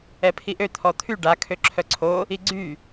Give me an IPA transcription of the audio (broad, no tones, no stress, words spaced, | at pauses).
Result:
ɛpʰiʔø t̪ʰɔt̪ʰy ɖa kʰøǁʰœǀʰo | iɡ͡ǀy